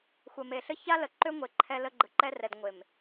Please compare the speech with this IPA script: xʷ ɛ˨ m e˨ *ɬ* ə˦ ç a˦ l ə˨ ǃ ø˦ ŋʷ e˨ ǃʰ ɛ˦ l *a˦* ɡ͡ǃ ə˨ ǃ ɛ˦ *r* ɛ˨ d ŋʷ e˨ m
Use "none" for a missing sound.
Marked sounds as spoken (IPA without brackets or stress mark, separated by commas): ɬ, ə˦, r